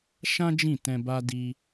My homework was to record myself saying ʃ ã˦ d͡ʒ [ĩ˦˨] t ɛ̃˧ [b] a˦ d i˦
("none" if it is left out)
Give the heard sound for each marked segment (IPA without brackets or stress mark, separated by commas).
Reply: ĩ˦˨, b